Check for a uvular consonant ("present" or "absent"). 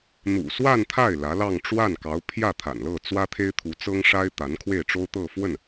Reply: absent